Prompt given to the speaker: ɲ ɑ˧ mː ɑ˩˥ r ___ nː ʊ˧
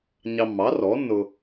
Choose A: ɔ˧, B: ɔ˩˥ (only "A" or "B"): B